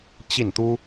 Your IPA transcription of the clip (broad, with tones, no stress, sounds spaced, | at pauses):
t͡ɕ i˥˩ n t̪ u˥